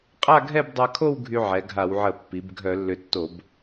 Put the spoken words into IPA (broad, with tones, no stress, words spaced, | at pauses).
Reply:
qʼa˥˧ɡʱɛ˥˧bdˤa˧kʰo˥˧w ɡʱy˧ʕɛ˩˧ ɡʱa˧˩˧wʕə˧˩˧ pːi˩˧bɡʱœ˧˩˧lːʏ˧tːo˧˩˧b